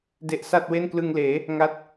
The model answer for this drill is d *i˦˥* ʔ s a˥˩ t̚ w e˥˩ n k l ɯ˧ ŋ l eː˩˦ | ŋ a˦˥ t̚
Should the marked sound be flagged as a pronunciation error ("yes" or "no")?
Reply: yes